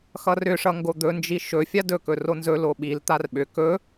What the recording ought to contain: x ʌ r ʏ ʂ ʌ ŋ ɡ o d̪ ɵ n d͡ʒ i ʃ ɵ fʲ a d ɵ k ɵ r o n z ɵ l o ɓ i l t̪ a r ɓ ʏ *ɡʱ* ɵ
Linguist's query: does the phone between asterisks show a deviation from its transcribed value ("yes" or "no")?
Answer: yes